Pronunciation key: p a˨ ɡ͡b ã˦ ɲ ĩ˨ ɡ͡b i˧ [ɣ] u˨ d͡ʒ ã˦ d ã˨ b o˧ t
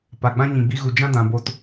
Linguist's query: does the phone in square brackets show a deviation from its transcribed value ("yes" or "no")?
no